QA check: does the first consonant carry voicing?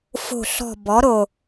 no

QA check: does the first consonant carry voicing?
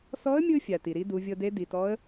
no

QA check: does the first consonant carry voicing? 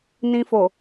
yes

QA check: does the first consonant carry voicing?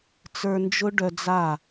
no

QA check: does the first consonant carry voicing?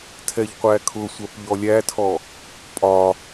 no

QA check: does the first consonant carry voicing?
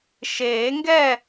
no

